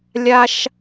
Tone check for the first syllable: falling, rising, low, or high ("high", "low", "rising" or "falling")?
high